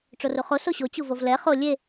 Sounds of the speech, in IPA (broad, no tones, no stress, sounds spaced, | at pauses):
ʈ͡ʂ o r u χ o s o ɕ o t͡ɕ u v o v l ɛ χ o lʲ e